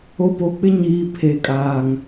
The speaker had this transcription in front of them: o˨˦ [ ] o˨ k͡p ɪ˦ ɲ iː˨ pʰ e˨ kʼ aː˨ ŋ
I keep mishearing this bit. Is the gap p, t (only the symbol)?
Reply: p